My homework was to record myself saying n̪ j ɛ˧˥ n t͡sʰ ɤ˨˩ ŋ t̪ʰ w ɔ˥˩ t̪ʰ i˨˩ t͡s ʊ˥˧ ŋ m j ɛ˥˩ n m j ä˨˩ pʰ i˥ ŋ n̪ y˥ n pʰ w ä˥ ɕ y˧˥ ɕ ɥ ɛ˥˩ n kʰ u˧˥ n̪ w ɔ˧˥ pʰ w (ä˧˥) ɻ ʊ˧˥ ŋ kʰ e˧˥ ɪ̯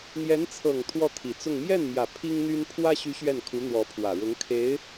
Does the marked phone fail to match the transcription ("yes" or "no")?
yes